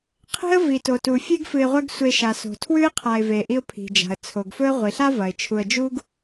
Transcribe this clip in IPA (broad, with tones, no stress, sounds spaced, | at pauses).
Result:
qʰ e̤˥ ə̯ v i˩ t o˩ t u˩ fʲ e˥ ɡ f ɨ˨ ɪ̯ ʁʷ ɐ˦ ɡ sʷ e˨ ʃ a˩ s o̤˩ tʰ w ʉ˥ ɪ̯ qʰ a˨ ɪ̯ v e˩ ʔ i˦ ʊ̯ pʰ i̤˩ d͡ʒ a̤˩ ə̯ t͡sʰ o˩ ɡ f ɵ˦ ə̯ ʁʷ i˩ ɬ a˥ v ɐ˩ ɪ̯ t͡ʃʰ u˨ ə̯ d͡ʒ u˥ ɡ